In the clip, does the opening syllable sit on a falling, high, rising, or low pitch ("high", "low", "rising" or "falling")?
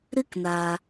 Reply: high